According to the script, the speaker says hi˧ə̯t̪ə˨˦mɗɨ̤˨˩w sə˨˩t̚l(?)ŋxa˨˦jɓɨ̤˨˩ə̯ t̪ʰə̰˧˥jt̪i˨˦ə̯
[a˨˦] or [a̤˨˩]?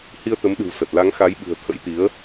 a˨˦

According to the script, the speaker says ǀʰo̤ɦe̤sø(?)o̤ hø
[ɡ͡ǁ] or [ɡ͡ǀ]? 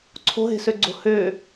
ɡ͡ǀ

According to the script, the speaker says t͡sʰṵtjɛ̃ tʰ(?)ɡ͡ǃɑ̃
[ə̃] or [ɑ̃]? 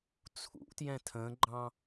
ə̃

